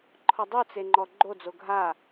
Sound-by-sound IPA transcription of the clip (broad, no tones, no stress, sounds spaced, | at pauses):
ǃʰ ɔ dˤ u t͡s e ŋ͡ǃ ɔ ɡ͡ǃ o d͡z o ɡʱ a